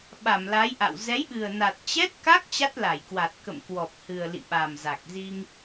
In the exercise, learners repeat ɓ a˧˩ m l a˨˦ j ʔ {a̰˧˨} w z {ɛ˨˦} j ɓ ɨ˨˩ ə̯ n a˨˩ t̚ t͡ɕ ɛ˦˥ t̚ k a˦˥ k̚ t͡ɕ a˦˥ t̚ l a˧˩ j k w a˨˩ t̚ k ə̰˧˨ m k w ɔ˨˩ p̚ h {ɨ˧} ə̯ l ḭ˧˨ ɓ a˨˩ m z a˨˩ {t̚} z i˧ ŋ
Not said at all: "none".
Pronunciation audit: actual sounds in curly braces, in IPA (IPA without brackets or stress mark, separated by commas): a̰˧˨, ɛ˨˦, ɨ˨˩, k̚